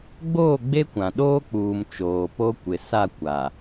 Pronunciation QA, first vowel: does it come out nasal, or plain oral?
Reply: oral